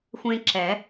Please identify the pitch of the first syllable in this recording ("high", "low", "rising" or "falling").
high